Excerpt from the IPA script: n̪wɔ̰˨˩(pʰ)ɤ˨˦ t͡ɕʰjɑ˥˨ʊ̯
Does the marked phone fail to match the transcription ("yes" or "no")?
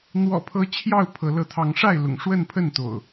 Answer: no